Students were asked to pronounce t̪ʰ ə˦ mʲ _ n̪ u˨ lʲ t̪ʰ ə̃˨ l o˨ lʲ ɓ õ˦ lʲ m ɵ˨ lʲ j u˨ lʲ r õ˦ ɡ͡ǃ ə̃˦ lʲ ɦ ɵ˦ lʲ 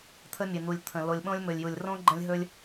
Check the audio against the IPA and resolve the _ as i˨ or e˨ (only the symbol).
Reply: e˨